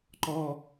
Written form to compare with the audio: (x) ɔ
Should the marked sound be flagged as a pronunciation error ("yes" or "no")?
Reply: yes